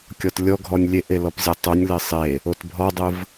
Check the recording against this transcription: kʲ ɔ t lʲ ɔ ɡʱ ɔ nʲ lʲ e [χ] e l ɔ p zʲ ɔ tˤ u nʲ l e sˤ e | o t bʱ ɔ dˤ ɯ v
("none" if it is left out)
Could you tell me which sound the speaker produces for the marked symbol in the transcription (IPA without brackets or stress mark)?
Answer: ʔ